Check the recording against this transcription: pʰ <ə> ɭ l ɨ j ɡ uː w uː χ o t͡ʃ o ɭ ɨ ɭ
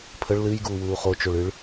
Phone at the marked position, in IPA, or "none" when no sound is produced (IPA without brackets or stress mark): ə